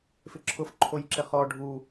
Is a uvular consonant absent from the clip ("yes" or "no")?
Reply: no